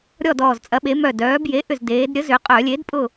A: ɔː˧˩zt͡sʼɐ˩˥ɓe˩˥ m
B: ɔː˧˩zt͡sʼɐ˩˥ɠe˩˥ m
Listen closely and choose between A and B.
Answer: A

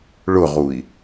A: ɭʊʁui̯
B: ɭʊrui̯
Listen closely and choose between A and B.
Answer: A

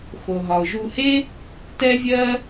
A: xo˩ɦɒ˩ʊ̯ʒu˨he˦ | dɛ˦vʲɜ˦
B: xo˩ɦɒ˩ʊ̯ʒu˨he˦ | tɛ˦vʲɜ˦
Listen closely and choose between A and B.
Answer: B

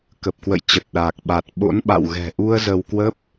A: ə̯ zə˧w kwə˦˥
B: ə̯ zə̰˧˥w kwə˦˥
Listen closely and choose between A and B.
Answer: A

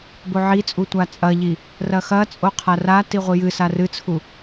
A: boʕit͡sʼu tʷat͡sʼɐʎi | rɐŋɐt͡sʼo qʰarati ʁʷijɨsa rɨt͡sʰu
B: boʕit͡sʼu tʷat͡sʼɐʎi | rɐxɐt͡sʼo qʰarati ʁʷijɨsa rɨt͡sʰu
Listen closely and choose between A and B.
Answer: B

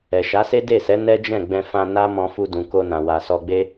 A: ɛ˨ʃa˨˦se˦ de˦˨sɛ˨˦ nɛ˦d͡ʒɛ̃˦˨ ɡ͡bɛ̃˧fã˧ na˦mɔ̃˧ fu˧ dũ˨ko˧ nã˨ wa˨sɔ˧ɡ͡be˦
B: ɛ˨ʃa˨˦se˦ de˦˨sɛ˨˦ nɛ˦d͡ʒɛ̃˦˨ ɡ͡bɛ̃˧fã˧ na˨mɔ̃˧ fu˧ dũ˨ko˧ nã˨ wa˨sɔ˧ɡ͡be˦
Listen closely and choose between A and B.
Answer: A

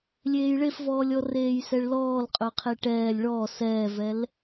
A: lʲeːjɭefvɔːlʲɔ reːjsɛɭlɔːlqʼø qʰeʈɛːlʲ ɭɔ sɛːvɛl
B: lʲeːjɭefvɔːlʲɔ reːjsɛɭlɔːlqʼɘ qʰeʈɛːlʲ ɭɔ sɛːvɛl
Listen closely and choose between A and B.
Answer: A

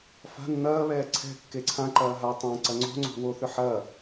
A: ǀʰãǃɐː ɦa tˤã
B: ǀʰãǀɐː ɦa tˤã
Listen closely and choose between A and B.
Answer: A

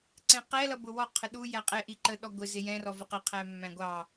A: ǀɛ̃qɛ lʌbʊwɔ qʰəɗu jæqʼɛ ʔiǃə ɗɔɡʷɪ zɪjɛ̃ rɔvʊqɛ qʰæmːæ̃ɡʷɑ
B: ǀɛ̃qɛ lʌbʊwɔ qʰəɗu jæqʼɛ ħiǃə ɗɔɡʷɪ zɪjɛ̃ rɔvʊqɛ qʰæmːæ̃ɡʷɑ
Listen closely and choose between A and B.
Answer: A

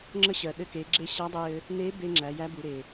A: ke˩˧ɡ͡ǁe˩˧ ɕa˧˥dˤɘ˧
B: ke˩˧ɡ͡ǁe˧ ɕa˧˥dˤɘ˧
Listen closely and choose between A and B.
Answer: B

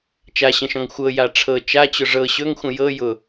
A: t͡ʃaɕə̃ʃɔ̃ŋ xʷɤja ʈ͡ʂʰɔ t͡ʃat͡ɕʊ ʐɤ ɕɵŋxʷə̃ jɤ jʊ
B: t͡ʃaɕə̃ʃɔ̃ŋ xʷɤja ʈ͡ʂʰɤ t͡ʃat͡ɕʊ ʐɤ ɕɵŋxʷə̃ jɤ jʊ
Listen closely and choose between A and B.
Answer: B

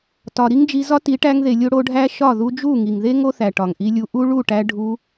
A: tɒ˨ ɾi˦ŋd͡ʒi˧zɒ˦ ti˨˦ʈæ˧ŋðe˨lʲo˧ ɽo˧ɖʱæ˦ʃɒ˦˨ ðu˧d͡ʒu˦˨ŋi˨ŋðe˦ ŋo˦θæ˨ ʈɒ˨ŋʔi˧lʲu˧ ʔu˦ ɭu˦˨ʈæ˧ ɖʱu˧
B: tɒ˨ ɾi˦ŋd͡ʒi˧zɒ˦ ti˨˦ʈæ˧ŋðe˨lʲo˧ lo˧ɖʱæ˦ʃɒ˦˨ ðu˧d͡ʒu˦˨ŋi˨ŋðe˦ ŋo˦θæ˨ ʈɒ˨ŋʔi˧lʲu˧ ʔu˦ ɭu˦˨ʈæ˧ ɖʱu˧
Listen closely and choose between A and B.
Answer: A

